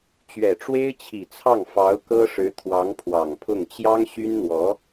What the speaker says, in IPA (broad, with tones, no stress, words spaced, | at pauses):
t͡ɕɥɛ˨˩ʈ͡ʂwe˥ɪ̯t͡ɕʰi˨˩t͡sʰɑ˥˩ŋ fɑ˧˥ʊ̯ kɤ˥ʂɻ̩˧˥ t̪ʰwɑ˧˥ŋpʰwɑ˨˩ŋpʰʊ˥˩ŋ t͡ɕjɑ˥ŋɕy˥nn̪wɔ˧˥